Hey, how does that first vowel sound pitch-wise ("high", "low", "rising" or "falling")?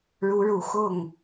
rising